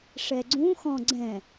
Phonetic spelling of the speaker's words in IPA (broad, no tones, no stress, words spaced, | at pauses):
ʂɛɡ͡ǀũxɔ̃ ɡ͡ǀɛ̃